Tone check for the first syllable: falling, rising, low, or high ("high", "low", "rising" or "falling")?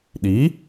rising